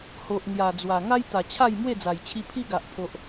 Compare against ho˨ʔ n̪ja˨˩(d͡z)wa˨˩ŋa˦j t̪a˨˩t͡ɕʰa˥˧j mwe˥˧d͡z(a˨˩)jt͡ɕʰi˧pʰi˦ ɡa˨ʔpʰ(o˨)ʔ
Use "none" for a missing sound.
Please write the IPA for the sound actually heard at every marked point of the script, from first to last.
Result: d͡z, a˨˩, o˨

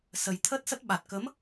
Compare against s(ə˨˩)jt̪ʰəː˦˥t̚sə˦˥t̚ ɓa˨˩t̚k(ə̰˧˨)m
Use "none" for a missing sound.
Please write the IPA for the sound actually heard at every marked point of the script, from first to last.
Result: ə˨˩, ə˨˦

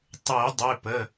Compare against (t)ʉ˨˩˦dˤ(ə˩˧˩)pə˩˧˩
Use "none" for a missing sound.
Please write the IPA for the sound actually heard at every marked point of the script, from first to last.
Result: tˤ, ʉ˩˧˩

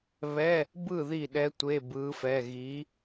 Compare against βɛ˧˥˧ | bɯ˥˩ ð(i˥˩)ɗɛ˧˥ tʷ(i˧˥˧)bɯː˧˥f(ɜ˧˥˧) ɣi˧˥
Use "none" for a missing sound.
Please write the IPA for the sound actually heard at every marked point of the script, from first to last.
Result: i˥˩, e˧˥˧, ɛ˧˥˧

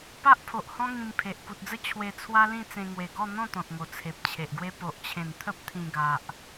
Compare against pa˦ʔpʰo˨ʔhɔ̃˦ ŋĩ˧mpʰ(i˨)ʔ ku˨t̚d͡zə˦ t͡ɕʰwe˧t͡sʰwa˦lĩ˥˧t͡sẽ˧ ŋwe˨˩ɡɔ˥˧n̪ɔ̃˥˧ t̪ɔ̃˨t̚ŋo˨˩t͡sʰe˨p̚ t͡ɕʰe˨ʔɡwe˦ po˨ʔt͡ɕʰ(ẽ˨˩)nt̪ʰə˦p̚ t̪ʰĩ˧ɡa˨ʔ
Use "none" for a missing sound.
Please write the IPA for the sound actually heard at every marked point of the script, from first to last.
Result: e˨, ẽ˨˩

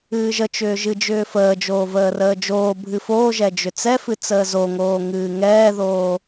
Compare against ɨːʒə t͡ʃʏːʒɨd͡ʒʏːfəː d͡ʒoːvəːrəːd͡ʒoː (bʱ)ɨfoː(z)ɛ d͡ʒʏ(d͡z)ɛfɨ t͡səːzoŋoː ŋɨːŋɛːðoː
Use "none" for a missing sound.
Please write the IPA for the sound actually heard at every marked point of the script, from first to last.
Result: bʱ, ʒ, t͡s

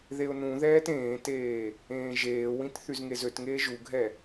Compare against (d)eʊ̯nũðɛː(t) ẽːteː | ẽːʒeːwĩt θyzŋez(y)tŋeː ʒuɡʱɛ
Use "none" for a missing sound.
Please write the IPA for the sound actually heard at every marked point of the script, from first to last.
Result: ð, t, ø

